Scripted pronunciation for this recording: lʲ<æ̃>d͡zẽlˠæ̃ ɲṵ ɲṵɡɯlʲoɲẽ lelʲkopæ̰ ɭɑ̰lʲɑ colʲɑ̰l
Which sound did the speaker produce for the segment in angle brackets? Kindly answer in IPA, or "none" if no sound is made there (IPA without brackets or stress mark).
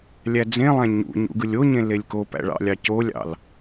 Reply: æ